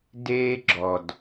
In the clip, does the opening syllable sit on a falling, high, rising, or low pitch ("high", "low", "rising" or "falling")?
high